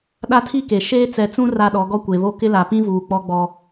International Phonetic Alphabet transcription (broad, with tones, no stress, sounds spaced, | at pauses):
ɗ a˦ tʰ i˦ k e˨ ʃ eː˦ t͡s ɛ˨ t͡s ũ˦ r a˦ ɗ ɔ˨˦ ɡ ɔ˦ kʷ e˨ β o˦ k ɪ˦ l a˨ p ĩ˦ v uː˨ k͡p ɔ˦ ɡ͡b ɔ˦